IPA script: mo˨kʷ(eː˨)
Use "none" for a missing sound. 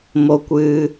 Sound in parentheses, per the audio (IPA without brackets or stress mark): ɨː˨